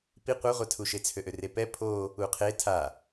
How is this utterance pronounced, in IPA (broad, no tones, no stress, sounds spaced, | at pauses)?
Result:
p i qʷ a ʁʷ a tʰ u ʃ e t͡sʰ ø ʔ ø r e p ɛ pʰ o | u qʰ e tʰ a